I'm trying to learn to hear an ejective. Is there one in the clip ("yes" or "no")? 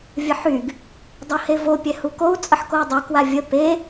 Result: yes